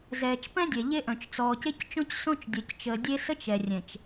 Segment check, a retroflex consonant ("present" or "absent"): absent